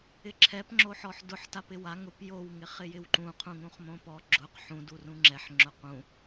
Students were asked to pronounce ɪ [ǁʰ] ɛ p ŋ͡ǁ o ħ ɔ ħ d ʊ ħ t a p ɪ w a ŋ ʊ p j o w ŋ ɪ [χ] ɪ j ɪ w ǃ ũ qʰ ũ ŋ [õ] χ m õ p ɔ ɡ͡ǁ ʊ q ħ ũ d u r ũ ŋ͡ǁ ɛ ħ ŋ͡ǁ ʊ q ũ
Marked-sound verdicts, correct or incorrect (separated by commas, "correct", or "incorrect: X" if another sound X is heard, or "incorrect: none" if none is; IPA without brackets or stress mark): correct, correct, incorrect: ũ